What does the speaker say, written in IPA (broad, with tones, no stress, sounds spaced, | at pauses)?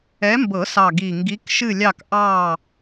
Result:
ɛ˨˦ m b ɤ˨˩˦ s ɑ˨˩ ɡ i˨˩ ŋ ɡ i˨˦ k ʃ ɨ˦˨ lʲ ɑ˦˨ k ʔ ɑ˦˨